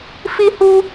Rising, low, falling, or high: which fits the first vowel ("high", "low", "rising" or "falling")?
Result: high